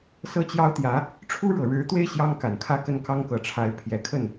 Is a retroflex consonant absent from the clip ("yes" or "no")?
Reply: no